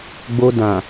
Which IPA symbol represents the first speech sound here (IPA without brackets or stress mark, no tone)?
ɡ͡b